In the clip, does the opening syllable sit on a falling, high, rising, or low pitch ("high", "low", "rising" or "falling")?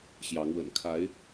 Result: rising